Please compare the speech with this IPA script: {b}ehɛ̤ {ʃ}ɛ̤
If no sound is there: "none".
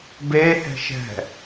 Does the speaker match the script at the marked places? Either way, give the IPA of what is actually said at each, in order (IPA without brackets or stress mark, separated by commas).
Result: b, ʃ